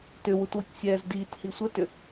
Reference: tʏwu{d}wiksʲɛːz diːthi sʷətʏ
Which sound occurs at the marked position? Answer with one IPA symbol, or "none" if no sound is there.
t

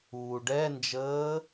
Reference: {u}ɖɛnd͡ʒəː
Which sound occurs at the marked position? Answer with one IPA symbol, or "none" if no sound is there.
uː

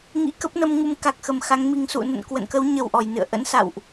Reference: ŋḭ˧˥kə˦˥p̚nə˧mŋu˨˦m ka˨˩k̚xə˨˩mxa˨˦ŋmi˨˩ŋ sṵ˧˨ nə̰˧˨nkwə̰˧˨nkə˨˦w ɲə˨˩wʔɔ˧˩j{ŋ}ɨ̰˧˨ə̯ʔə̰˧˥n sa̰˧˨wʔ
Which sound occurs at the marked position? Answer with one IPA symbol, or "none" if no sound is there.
n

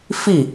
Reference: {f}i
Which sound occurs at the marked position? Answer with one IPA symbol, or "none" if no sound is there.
f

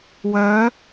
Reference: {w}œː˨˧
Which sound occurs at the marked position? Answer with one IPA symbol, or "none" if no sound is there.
w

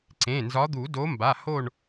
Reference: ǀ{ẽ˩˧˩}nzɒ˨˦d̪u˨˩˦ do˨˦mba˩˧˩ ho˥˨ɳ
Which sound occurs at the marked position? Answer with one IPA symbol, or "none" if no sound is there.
ẽ˩˧˩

